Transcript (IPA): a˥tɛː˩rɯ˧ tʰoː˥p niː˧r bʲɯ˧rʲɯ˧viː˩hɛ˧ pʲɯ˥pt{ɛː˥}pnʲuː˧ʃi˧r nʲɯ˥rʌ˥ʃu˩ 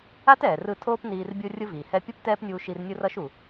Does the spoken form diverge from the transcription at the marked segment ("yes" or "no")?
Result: no